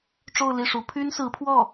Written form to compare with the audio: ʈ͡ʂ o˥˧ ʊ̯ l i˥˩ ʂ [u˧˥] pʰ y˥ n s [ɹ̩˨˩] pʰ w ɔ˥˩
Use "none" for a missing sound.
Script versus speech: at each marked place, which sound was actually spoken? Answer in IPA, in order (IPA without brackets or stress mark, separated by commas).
u˧˥, ɹ̩˧˥